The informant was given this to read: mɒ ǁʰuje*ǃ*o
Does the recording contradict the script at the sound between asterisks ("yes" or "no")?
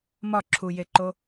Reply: no